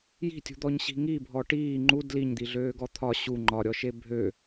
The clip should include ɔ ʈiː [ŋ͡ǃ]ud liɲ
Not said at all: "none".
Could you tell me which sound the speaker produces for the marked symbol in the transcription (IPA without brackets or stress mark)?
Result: ŋ͡ǃ